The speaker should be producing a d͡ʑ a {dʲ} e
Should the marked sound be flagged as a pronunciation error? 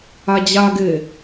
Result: yes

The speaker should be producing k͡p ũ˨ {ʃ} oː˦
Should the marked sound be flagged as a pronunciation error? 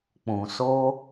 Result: yes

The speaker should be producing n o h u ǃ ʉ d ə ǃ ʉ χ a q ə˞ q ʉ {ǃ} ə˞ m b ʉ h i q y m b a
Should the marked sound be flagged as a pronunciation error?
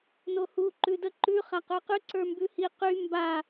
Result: yes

